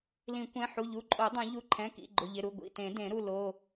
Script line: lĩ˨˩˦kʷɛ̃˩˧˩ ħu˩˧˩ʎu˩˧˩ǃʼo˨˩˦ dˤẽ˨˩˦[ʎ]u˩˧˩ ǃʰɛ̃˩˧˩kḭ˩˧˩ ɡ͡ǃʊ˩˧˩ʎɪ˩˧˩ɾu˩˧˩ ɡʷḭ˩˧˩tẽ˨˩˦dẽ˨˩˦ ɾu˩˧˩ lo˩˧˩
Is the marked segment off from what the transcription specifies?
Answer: no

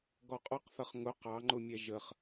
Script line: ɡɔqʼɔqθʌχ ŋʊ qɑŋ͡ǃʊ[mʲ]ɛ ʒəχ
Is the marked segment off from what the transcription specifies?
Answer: no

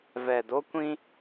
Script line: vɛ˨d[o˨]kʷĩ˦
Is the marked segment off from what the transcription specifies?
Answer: yes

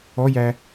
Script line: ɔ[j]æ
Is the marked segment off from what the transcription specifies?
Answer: no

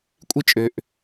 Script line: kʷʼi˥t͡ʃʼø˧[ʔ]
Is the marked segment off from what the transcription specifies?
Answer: no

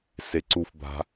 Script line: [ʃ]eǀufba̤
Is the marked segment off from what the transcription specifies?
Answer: yes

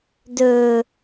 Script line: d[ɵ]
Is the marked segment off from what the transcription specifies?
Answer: no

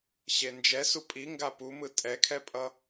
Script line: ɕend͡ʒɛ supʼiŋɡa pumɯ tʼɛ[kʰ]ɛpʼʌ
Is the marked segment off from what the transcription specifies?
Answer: no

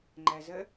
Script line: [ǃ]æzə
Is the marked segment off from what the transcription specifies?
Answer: yes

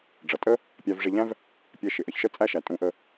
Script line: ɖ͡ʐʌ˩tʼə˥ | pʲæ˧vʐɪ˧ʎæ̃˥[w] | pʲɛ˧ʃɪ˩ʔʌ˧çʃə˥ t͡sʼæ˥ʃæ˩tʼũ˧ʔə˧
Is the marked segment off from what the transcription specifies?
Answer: yes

